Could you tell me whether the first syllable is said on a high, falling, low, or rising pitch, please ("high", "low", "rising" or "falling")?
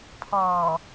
low